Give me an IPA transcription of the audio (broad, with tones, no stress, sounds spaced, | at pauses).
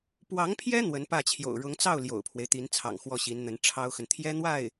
p w ɑ˧˥ ŋ pʰ j ɛ˥ n̪ w ə˧˥ n p ä˥˩ t͡ɕʰ j o̰˨˩ ʊ̯ ɻ ʊ˧˥ ŋ t͡s ɑ˥˩ ʊ̯ l j o̰˨˩ ʊ̯ pʰ w e˦ ɪ̯ t̪ i˧˥ n t͡sʰ ɑ̰˨˩ ŋ x w ɔ˥˩ ɕ i˧˥ n n̪ ə˧˥ n ʈ͡ʂʰ ɑ˥ ʊ̯ x ə˨ n t̪ʰ j ɛ˥ n̪ w a˥˩ ɪ̯